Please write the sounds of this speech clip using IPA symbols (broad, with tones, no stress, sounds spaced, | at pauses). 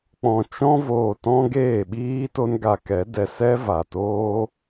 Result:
k͡p ɔ̃˨ t͡ʃ ɔ̃˧ v oː˨ t ɔ̃˦ ɡ eː˦˨ ɓ iː˦ t o˦ n ɡ a˧ k ɛ˨˦ d ɛ˨ s ɛ˦ v a˨ t oː˦